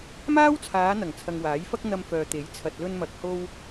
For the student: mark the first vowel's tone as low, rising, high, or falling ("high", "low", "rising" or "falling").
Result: high